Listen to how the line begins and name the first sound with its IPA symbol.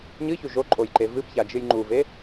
ɲ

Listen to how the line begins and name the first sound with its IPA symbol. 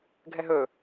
ɡʱ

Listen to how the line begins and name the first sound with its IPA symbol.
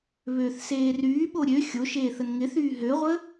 β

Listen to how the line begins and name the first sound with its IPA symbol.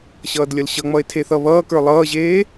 ɕ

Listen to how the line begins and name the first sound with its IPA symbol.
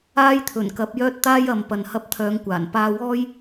aː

